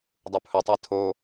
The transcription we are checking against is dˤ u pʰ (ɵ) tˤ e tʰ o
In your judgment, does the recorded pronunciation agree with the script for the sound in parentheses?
yes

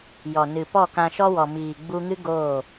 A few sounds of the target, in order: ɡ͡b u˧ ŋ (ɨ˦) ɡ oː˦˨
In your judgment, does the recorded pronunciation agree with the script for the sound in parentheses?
yes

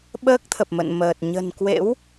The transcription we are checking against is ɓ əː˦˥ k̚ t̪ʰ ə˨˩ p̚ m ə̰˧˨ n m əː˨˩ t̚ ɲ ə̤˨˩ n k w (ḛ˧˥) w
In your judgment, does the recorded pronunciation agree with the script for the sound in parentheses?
yes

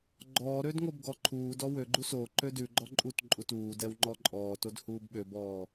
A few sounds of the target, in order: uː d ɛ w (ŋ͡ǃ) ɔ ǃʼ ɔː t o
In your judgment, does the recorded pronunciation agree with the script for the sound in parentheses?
yes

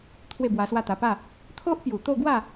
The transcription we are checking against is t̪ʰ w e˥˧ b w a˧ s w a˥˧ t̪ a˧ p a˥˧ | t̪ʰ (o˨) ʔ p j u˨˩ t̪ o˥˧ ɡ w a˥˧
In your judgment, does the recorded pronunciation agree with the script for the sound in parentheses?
no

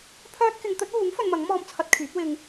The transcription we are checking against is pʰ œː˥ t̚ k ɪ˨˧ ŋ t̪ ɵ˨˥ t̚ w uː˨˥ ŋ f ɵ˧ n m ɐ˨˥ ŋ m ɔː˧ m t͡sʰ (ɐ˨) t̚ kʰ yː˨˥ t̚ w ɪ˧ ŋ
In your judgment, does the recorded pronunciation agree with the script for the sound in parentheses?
no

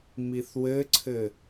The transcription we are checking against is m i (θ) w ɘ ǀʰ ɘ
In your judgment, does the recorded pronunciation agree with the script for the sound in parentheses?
yes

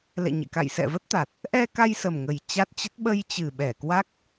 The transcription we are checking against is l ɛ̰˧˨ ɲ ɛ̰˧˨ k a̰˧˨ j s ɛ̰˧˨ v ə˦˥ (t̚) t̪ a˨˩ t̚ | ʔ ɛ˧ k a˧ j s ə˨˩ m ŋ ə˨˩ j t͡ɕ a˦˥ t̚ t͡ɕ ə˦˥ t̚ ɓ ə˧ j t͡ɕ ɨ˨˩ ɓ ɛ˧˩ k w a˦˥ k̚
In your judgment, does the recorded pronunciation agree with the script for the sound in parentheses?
yes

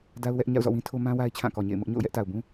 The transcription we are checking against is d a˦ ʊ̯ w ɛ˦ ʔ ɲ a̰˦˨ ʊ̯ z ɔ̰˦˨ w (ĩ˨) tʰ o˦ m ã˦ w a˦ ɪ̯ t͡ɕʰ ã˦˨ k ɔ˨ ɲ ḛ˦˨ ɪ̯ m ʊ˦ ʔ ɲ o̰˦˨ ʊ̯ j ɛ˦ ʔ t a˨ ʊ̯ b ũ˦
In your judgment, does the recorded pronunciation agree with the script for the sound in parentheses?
no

